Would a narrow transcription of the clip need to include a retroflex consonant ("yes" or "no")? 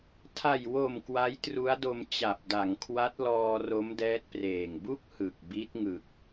no